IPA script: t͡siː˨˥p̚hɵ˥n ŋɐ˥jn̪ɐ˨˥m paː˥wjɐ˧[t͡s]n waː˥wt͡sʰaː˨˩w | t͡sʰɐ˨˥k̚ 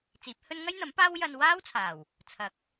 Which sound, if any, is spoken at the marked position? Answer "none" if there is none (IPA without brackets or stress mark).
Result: none